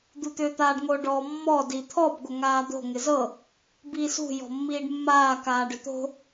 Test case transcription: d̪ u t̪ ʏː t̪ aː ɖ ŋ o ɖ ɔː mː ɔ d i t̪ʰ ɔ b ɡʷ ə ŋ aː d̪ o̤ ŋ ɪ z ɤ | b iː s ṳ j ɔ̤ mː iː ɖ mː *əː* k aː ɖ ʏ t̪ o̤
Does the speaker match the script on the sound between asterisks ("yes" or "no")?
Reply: no